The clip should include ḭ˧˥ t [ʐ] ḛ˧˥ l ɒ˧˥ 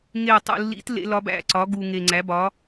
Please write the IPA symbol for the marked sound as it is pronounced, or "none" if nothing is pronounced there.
l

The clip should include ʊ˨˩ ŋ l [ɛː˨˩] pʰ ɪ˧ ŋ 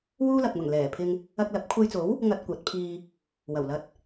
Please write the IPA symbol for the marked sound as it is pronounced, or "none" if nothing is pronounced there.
ɛː˨˩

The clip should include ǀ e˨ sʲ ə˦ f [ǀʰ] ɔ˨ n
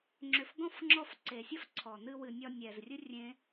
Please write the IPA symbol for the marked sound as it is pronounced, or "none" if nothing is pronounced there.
ǀʰ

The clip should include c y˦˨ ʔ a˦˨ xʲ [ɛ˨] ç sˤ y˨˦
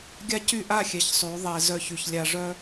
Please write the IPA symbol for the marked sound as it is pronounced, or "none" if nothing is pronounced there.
ɛ˨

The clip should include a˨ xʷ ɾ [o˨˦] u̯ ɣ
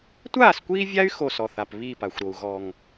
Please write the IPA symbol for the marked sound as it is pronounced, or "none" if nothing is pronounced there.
o˨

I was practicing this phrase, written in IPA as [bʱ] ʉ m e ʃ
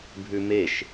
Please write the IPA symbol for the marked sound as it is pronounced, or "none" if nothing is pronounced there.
bʱ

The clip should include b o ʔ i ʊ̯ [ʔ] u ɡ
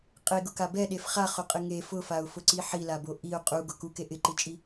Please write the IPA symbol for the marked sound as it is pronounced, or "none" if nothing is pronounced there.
qʼ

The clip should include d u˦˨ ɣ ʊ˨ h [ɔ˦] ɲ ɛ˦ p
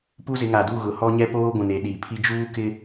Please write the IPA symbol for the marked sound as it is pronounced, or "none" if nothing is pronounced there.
ɔ˦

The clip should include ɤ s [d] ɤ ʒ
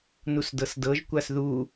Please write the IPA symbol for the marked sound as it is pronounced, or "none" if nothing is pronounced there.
d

